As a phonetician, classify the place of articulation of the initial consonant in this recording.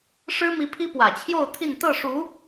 retroflex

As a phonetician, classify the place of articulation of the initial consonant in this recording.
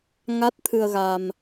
velar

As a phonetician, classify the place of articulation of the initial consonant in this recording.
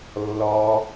alveolar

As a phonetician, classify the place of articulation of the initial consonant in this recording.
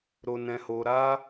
alveolar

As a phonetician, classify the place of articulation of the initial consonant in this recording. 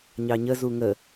palatal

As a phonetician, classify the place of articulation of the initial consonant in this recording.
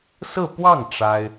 alveolar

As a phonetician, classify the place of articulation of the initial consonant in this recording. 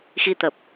velar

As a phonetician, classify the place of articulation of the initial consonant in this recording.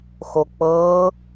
velar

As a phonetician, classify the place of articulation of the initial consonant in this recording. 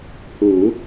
glottal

